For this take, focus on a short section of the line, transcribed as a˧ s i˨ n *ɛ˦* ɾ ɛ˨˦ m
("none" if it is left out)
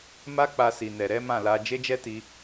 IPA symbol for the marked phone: ɛ˨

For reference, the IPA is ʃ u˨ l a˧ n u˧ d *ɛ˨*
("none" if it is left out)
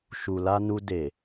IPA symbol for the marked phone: e˨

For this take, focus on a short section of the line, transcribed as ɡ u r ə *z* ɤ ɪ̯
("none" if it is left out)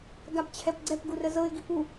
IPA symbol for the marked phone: z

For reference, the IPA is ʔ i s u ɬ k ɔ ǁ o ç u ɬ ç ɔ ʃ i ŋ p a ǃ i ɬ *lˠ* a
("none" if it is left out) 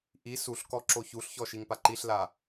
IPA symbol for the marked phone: l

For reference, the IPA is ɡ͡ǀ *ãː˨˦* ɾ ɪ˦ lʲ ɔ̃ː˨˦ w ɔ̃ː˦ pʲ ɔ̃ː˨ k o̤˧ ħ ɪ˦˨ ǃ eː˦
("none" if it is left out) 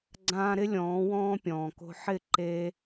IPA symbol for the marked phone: ãː˧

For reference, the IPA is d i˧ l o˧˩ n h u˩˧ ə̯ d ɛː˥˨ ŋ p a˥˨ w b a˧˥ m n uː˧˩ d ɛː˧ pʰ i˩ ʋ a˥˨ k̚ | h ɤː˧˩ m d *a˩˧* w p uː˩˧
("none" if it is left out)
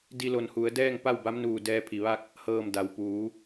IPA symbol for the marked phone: a˩˧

